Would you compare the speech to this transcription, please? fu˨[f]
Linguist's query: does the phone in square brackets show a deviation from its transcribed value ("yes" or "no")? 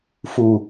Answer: yes